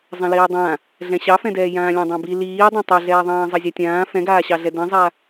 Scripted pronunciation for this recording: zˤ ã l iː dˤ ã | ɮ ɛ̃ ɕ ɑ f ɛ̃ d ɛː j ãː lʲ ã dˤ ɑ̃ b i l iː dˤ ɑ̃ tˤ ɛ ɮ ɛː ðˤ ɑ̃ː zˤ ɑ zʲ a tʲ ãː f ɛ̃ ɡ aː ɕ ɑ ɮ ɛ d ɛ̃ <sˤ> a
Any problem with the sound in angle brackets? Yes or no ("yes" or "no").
yes